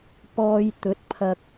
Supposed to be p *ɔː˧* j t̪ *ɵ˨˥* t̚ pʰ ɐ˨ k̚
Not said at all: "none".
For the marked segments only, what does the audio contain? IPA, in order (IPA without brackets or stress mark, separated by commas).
ɔː˧, ɵ˨˥